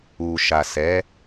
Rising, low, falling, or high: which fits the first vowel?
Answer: low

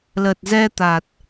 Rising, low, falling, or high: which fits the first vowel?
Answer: low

